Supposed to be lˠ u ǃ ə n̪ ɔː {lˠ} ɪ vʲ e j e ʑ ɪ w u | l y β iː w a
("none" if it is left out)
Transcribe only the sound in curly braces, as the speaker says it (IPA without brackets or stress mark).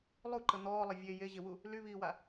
lˠ